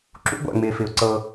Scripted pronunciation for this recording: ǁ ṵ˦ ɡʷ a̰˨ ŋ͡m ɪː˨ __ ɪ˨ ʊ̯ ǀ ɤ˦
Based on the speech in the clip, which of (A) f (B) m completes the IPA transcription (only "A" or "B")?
A